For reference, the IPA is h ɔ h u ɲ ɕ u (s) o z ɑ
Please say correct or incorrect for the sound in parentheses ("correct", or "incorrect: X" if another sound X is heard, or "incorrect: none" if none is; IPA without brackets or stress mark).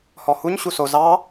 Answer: correct